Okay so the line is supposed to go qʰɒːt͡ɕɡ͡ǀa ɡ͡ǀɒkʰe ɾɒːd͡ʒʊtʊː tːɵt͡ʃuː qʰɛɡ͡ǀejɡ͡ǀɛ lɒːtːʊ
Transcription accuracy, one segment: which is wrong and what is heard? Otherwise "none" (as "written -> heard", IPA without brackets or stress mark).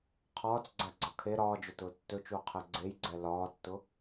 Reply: t͡ɕ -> t͡s